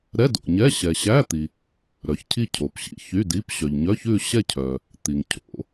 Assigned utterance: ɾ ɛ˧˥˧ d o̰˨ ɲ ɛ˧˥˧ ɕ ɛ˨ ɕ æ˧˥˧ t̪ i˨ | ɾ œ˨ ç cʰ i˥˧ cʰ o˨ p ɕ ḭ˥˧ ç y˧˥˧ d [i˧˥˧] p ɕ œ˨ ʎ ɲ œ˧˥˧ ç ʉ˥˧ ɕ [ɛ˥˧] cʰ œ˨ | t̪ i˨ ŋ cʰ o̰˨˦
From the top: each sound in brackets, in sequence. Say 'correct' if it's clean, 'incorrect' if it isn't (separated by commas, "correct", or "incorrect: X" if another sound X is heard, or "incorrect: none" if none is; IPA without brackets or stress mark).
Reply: correct, correct